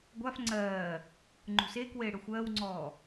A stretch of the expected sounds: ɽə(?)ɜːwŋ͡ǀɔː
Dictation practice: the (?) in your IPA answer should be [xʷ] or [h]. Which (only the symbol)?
xʷ